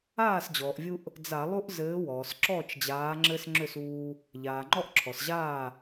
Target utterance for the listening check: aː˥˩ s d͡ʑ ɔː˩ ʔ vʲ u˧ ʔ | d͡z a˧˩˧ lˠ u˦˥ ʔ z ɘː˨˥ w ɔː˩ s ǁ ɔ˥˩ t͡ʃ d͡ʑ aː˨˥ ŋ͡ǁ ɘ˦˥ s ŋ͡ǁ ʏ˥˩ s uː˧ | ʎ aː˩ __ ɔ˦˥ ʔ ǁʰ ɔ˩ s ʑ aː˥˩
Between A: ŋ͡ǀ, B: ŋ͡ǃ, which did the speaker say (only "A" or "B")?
B